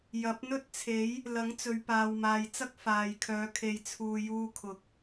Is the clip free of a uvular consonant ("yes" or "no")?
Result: yes